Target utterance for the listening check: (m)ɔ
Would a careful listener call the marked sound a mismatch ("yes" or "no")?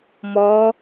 no